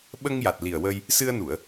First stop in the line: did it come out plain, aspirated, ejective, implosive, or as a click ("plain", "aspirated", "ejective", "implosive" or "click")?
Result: implosive